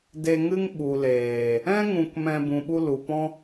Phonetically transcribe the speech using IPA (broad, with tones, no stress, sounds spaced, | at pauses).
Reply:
d e˧ ŋ ɨ˦ ŋ ɓ u˨ l eː˨ | ɛ̃˦ ŋ ũ˧ k m ɛ̃˧ b ũ˨ ɓ u˧ l u˨ p ɔ̃˦